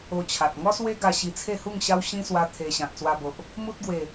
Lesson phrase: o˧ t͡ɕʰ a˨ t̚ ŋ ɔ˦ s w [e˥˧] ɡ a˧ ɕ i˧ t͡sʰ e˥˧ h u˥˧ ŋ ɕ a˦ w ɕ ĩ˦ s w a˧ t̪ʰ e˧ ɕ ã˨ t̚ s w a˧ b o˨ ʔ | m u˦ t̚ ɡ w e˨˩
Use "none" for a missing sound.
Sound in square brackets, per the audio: e˦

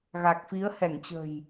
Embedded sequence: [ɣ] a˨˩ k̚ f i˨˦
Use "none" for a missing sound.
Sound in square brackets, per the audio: ɣ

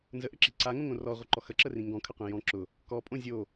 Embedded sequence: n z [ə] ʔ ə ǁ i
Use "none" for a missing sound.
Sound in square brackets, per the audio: ə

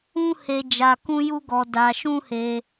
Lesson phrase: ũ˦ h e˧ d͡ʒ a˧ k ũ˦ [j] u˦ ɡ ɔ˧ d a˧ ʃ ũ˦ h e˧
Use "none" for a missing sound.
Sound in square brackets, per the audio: j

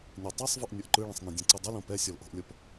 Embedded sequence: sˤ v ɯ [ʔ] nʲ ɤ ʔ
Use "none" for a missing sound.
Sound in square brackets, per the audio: ʔ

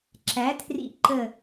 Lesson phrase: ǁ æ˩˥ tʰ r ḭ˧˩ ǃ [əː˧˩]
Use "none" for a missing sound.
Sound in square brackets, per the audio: ə˧˩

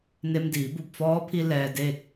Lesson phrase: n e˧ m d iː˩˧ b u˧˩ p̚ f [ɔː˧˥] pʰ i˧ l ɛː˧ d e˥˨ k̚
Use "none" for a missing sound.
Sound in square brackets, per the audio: ɔː˧˥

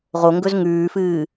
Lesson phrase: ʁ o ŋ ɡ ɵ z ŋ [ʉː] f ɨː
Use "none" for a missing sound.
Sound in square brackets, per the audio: ʉː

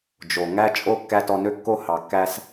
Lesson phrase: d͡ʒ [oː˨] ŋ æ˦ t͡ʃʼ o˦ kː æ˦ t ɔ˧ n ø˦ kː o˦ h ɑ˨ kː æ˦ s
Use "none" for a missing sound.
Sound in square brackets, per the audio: o˨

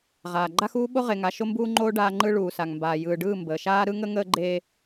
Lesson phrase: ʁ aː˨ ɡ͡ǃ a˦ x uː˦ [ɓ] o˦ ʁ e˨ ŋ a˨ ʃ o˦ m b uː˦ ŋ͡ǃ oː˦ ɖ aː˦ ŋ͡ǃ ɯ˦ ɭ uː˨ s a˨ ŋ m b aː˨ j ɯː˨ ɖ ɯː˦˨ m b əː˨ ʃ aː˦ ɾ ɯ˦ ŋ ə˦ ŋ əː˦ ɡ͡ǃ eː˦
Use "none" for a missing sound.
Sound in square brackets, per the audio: ɓ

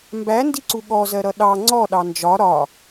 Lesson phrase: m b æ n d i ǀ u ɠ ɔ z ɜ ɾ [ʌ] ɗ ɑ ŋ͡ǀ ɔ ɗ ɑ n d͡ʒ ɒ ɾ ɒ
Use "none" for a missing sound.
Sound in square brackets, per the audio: ʌ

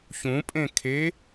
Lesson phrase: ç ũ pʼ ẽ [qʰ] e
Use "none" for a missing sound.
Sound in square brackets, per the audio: kʰ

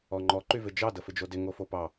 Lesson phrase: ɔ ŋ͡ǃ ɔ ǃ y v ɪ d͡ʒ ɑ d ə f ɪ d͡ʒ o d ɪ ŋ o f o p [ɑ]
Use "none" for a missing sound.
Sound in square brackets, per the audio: ɑ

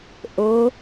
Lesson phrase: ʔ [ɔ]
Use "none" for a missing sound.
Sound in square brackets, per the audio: o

